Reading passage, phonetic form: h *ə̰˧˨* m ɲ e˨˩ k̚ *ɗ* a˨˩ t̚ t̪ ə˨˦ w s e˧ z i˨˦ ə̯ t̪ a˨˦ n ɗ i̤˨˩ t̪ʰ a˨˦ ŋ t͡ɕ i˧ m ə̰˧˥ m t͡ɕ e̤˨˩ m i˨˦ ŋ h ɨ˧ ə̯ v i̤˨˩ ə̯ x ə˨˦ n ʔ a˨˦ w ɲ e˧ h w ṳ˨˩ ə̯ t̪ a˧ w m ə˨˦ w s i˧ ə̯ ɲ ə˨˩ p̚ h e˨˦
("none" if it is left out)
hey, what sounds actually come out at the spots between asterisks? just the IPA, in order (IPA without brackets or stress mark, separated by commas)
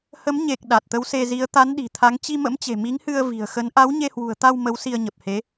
ə˨˦, ɗ